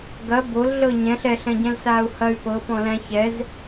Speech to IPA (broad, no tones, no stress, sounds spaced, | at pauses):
ɡ ɐ b o l ɮ ɤ ɲ ɛ̃ ɬ ɛ ɬ ɛ̃ ɟ ɛ̃ l s aː u̯ h ɐ y̯ p ɤ p ɔ̃ l æ̃ ç ɛ z